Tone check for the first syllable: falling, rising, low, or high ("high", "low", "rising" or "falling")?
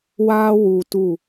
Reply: high